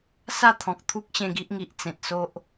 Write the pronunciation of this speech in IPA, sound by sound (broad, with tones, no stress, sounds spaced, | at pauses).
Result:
s a˥˧ t̪ʰ ɔ̃˨ k̚ t̪ʰ u˦ k̚ ɕ ẽ˧ ɡ i˦ ʔ ŋ i˨ ʔ t͡s ẽ˨ t̚ s o˦ ʔ